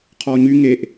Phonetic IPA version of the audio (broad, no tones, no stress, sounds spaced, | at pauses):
qʰ ɔ ɲ y ŋ e ʔ